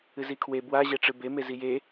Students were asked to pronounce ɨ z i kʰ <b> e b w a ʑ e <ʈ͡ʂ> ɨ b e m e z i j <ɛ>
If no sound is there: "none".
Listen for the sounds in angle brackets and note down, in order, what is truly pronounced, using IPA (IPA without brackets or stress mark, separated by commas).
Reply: w, ʈ͡ʂ, e